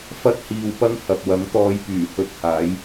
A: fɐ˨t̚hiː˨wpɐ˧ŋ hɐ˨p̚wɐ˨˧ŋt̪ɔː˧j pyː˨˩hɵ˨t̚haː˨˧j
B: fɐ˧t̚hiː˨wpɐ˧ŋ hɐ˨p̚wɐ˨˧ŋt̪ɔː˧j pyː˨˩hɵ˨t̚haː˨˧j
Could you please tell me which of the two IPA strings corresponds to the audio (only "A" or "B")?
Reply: B